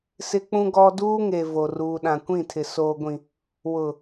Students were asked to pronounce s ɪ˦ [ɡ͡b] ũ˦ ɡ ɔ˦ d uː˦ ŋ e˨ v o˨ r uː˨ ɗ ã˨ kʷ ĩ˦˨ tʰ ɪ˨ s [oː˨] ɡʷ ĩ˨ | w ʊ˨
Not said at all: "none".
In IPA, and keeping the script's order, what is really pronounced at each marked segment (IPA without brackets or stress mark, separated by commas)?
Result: k͡p, oː˨